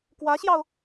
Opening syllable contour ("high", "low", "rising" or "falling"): rising